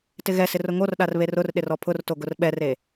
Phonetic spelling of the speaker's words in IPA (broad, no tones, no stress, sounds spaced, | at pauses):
t ɪ ɣ ɛ s ɪ r ʊ ŋ o r ɗ a r β e r ʊ r ɗ ɪ r ɔ pʰ ʊ r t o ɡ ʊ r ɓ ɛ r e